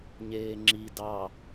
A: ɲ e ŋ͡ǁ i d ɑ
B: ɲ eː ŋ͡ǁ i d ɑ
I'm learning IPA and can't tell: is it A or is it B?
B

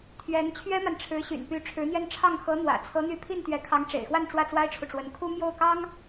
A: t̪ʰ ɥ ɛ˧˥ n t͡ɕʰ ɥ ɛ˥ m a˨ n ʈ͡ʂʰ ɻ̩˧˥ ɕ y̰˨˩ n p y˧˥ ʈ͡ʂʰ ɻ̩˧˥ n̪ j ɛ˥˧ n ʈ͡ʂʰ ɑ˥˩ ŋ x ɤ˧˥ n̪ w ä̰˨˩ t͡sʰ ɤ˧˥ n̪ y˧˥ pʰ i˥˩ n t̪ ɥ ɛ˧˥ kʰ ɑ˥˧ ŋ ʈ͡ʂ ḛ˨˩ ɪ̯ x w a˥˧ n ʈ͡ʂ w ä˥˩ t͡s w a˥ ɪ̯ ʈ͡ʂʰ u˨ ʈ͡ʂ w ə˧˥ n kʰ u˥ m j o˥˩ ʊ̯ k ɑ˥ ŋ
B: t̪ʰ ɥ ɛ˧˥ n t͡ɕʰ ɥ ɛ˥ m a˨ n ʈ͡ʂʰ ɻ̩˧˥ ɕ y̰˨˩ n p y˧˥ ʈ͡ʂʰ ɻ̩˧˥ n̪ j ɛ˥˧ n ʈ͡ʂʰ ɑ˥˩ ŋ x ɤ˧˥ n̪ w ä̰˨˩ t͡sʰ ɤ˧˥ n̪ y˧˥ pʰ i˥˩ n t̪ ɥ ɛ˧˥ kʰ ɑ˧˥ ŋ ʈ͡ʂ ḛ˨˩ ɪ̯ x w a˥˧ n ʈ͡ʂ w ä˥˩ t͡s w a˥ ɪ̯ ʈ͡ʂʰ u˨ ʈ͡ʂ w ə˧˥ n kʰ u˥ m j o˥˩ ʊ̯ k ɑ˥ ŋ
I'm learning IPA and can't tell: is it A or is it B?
B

